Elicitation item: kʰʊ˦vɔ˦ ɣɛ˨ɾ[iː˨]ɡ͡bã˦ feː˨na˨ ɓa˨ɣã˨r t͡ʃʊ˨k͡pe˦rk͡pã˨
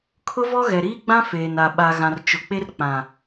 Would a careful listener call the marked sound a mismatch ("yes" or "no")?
yes